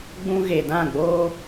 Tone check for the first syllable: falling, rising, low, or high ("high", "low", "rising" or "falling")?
high